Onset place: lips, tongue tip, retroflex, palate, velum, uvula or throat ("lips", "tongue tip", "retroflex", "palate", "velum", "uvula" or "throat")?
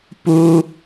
lips